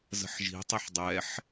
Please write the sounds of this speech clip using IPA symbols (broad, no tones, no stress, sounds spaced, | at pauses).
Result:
z ə̤ ħ ʒ i̤ tˤ i ħ dˤ ɛ ħ